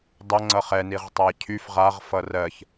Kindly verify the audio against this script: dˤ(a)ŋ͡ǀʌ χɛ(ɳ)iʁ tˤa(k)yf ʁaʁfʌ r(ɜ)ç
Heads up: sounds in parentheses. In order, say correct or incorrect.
incorrect: ʌ, incorrect: n, incorrect: cʰ, correct

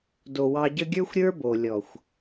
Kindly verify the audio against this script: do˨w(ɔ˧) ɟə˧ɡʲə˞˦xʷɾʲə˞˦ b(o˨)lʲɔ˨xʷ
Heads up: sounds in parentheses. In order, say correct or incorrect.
incorrect: ɑ˧, correct

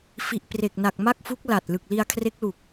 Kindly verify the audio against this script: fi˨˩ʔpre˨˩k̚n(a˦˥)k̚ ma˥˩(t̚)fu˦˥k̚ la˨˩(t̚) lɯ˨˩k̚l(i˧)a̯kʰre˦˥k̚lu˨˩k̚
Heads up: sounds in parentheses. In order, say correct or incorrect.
incorrect: a˨˩, incorrect: k̚, correct, correct

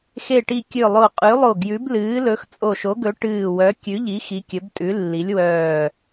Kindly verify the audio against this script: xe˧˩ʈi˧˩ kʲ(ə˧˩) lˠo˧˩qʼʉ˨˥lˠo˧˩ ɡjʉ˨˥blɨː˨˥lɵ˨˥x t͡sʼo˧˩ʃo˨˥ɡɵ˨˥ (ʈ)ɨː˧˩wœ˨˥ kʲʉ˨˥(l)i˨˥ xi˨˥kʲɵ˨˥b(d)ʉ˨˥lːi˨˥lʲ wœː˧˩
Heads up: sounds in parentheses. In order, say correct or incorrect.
incorrect: ɵ˧˩, correct, incorrect: ʎ, incorrect: tʼ

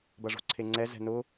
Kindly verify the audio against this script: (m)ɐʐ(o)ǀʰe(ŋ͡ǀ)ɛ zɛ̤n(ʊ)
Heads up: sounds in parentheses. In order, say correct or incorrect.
incorrect: b, incorrect: o̤, correct, correct

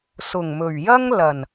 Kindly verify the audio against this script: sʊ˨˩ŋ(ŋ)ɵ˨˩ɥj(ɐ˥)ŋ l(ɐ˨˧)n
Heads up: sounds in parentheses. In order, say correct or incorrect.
incorrect: m, correct, incorrect: ɐ˨˩

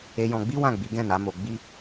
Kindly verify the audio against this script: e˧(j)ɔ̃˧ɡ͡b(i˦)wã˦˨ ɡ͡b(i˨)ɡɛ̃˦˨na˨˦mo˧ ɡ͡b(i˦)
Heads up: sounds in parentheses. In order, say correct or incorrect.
correct, correct, incorrect: i˨˦, correct

